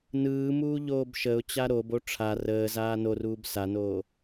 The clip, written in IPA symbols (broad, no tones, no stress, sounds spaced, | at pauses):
n ɯː m uː ʎ oː b ʃ ə ʊ̯ t͡ɕ a ɾ o b o ʈ͡ʂʰ a r əː z aː n o r uː b s a n oː